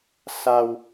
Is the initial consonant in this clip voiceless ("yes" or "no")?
yes